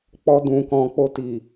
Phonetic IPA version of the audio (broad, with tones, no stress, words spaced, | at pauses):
k͡pɔ˧dũ˨kɔ̃˨ k͡po˧ti˨